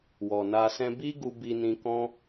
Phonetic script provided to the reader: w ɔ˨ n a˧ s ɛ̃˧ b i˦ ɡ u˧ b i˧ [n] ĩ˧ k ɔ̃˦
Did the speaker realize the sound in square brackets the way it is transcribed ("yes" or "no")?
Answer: yes